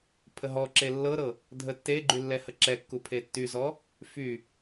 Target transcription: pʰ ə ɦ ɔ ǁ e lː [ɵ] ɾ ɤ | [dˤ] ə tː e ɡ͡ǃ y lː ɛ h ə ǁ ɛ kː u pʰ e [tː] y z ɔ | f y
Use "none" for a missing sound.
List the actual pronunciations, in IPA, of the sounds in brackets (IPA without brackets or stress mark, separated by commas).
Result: ɤ, dʱ, tː